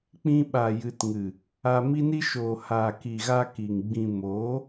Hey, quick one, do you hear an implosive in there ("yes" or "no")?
yes